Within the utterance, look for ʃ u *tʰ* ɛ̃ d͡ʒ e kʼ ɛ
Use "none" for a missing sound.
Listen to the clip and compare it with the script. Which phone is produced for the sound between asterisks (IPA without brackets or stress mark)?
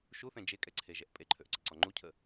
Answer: θ